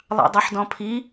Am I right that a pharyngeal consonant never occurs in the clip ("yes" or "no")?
no